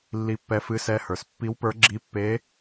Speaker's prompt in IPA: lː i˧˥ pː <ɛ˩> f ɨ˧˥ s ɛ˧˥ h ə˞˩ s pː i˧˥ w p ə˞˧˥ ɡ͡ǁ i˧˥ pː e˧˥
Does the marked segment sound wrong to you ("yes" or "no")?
yes